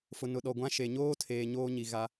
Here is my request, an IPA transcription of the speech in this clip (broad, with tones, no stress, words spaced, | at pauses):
fʊ˨nʊ˨ɗɔ˨ ɡʷã˦ʃe˨ ɲoː˦tʰeː˨ ɲoː˦ɲi˨ ɣa˦